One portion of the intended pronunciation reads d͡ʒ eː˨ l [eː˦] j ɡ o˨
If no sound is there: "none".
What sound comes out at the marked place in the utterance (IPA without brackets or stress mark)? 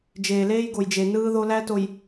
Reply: eː˦